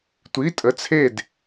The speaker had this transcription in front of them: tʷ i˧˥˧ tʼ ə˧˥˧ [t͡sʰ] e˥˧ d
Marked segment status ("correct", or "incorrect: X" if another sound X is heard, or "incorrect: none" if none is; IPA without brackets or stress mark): correct